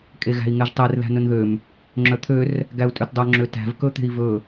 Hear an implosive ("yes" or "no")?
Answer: no